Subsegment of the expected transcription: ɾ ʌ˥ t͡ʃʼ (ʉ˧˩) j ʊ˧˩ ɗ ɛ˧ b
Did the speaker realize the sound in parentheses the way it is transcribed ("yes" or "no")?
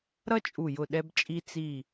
no